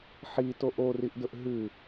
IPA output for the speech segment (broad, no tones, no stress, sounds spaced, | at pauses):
ħ i t o ʔ o r i ʔ d ɵ ʔ ɦ ʉ